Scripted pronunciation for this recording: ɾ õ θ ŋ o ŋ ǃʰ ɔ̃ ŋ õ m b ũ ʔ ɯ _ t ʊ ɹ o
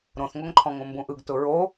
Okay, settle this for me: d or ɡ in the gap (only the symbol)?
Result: ɡ